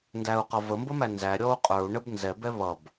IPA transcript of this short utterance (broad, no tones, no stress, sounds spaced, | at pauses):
n d æ u̯ q ʌ v ə m b ə m æ n z æ ɾʲ ɔ u̯ qʼ ə˞ u̯ ɳ ə b n z ɛ b ɛ β ʌ b